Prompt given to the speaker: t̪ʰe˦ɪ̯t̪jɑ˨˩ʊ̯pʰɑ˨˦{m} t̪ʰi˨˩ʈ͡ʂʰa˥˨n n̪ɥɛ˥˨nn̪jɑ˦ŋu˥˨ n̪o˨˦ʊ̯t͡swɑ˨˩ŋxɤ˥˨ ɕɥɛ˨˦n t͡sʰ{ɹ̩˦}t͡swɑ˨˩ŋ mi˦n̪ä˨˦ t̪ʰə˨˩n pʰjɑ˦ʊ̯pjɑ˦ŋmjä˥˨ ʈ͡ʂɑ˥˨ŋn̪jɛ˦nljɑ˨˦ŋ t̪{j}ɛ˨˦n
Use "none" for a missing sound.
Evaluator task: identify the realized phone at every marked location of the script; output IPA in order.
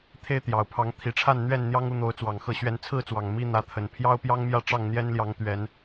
ŋ, ɹ̩˥˨, ɥ

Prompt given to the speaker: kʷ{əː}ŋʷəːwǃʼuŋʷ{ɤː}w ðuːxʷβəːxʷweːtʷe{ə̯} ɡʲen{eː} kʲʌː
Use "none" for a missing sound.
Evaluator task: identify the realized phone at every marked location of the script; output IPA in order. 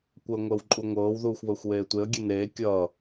əː, ɤː, ə̯, eː

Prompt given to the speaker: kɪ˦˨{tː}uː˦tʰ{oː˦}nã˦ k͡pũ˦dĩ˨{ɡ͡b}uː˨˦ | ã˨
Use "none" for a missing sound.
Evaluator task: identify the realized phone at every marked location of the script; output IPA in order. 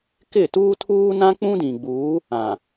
t, uː˦, ɡ͡b

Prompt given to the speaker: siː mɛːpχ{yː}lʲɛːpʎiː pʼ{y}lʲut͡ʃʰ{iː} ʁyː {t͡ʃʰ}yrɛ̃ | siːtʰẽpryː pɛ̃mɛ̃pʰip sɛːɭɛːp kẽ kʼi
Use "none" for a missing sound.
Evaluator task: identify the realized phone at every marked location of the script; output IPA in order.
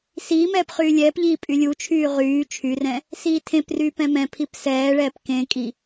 yː, y, yː, t͡ʃʰ

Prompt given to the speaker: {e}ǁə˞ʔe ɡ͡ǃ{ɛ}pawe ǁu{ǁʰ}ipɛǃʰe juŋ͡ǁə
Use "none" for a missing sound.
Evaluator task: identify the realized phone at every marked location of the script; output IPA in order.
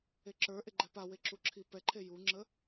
e, ɛ, ǁʰ

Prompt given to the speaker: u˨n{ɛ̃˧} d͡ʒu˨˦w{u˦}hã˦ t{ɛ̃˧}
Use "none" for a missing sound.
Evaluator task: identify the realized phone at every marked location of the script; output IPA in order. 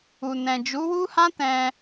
ɛ̃˨, u˦, ɛ̃˧

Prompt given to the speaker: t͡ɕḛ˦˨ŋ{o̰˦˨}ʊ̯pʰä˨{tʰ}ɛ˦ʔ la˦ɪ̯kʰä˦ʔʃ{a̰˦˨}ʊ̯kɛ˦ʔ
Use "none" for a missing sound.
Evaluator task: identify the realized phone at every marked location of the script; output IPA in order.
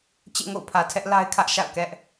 o̰˦˨, tʰ, a̰˦˨

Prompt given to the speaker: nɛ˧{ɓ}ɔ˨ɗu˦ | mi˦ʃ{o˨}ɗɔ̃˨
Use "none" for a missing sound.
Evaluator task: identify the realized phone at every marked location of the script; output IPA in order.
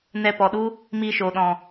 p, o˨

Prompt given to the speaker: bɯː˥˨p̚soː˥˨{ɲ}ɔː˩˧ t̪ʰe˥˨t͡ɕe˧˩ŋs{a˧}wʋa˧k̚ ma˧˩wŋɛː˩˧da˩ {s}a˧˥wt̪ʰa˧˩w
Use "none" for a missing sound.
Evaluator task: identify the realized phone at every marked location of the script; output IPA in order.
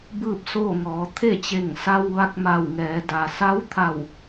ŋ, a˧, s

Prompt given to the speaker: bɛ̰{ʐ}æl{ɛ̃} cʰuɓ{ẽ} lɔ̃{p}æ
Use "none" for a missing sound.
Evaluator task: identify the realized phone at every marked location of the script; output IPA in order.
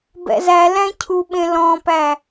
z, æ̃, ẽ, p

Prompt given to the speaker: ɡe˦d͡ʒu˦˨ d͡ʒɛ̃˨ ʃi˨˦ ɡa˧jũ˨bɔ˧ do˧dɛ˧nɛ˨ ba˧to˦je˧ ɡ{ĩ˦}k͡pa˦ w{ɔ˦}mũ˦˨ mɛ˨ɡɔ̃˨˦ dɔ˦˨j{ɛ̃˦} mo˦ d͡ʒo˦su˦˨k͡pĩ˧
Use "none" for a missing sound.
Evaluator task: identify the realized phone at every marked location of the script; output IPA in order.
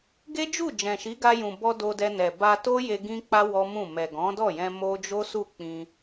ĩ˦, ɔ˦, ɛ̃˧

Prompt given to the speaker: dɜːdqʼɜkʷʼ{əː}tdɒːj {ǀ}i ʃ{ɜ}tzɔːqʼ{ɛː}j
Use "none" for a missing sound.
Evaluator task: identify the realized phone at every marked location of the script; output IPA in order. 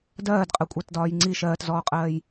əː, ŋ͡ǀ, ɜː, ɜː

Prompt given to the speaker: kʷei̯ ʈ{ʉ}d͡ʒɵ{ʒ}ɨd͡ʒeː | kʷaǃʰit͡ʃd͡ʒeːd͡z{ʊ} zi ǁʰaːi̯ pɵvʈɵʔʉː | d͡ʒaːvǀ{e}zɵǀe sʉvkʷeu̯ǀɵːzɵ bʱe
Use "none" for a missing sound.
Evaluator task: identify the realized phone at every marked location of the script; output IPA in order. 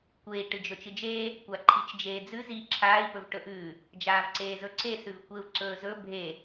ɨ, t͡ʃ, ʉ, eː

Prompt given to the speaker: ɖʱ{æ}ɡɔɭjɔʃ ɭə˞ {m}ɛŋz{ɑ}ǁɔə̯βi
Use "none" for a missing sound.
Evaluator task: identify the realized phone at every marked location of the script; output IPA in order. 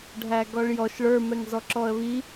æ, m, ɔ

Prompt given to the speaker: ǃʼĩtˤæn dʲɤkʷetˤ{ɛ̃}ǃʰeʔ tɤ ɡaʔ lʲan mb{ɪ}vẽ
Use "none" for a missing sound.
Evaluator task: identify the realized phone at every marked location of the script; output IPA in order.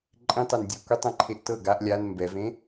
ɛ̃, ɛ

